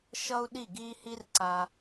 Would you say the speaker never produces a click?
no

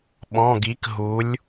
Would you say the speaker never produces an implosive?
no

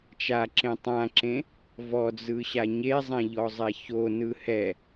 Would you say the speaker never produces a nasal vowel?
no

